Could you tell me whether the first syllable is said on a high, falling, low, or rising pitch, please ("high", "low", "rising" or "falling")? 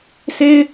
high